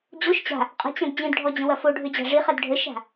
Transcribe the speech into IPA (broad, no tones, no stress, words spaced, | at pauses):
d͡ʑoʃ t͡ɕa̤ | qʼə̤t͡ɕɐ̃d d͡ʑĩdɖʱɔd͡ʑə̃wɐ foɖʱød͡ʑa̤ ʐiχɐd ɖʱəʃa̤